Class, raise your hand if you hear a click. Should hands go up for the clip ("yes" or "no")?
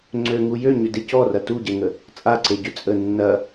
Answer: yes